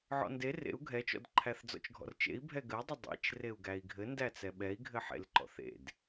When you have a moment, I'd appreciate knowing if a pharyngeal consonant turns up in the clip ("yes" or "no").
yes